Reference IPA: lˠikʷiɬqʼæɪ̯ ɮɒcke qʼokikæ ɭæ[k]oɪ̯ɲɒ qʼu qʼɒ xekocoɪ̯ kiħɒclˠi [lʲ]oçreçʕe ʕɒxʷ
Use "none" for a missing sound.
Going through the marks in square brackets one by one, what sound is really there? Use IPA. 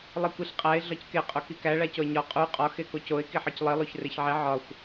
c, lˠ

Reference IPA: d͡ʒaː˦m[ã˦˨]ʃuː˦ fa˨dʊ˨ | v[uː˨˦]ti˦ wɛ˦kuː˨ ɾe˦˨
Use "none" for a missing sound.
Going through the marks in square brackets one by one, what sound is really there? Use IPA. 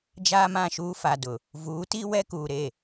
ã˦˨, uː˨˦

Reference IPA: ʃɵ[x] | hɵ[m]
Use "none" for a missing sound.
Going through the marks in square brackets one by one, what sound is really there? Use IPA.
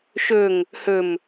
ŋ, m

